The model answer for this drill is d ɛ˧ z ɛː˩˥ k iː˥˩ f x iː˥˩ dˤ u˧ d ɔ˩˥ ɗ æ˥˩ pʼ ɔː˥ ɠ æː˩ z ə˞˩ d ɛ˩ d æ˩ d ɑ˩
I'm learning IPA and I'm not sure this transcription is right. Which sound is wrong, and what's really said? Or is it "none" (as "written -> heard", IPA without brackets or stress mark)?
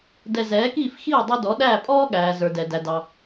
none